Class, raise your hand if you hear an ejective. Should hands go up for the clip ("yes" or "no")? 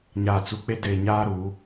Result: no